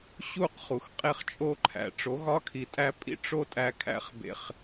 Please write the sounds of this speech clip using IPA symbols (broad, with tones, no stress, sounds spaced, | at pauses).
ɕ u˦˨ q χ u˨ x qʼ e˦ χ t͡ʃʼ o˦ ǃʰ æ̰˨ ʈ͡ʂ o˨˦ ɣ ɒ˦ kʰ i˨ tʼ æ˦ pʼ ḭ˦ ʈ͡ʂ o˦ tʼ æ˦ kʰ æ̰˦ χ b ḛ˦ χ